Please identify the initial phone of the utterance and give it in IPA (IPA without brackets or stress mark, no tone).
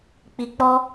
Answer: k͡p